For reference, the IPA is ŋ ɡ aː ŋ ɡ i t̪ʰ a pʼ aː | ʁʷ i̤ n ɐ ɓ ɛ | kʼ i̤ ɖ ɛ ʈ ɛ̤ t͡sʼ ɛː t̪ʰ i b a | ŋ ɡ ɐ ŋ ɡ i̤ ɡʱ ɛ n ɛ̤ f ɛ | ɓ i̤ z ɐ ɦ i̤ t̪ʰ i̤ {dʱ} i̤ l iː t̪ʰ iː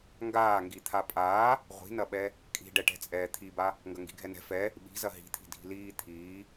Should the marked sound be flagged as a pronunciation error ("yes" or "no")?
no